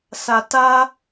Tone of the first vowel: low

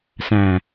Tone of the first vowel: low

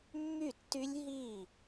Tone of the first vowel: falling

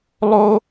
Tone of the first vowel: high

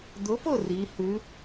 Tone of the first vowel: rising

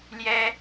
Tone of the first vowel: high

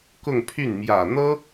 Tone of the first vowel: falling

